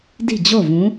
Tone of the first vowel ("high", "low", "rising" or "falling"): falling